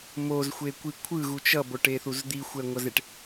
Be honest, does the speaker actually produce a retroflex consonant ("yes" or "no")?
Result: yes